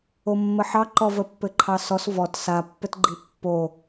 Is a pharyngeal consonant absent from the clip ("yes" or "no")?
no